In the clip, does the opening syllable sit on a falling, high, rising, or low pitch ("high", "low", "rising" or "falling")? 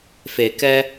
low